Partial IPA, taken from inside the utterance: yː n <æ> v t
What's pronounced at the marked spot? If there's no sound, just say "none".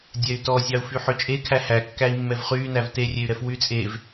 æ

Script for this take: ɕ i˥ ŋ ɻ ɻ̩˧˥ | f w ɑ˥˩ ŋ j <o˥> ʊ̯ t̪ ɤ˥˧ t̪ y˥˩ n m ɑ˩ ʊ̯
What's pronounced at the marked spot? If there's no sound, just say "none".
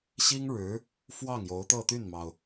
o˧˥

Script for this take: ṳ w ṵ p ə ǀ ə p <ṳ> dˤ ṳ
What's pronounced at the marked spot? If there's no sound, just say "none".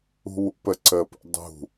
ṵ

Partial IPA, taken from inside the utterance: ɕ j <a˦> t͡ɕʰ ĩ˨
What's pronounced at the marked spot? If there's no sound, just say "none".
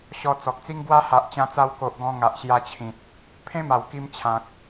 a˧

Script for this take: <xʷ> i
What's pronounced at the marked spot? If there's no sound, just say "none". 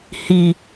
h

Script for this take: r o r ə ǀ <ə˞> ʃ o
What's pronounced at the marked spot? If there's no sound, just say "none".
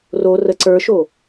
ə˞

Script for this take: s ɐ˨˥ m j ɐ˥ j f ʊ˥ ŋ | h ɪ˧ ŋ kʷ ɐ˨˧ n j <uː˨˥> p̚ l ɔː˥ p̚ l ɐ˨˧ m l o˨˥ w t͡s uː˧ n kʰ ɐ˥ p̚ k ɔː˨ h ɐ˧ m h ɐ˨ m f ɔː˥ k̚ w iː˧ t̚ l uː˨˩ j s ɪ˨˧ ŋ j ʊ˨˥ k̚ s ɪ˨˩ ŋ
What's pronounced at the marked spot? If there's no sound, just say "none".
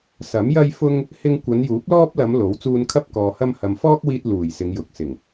uː˨˥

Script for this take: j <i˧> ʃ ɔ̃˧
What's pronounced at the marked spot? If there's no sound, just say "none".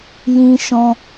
ĩ˧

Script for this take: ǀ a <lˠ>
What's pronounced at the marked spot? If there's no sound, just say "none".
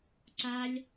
lʲ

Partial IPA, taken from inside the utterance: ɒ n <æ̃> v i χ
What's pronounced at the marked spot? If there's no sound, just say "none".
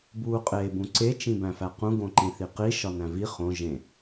æ̃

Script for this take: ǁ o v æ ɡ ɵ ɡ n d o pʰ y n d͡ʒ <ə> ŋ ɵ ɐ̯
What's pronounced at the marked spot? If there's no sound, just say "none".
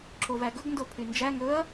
æ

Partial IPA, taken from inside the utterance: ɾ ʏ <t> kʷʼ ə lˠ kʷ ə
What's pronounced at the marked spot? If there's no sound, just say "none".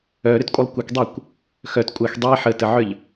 t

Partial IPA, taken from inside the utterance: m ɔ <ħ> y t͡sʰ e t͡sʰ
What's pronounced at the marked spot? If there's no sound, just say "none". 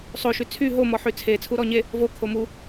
ħ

